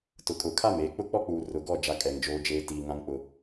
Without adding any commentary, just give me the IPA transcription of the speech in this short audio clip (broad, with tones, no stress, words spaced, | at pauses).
tʊ˨kʼʊ˨kʰa˦˨meː˨ k͡pʊ˦k͡pɔ˦k͡puː˨ rʊ˨ɡɔ˦˨ d͡ʒa˦kʼɛ˨ŋd͡ʒoː˦d͡ʒeː˦ tiː˨ ŋã˦ŋk͡pʊ˦